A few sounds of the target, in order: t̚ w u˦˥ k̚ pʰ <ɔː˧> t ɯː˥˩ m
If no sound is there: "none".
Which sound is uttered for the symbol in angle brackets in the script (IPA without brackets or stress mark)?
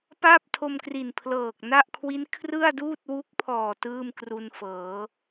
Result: ɔː˨˩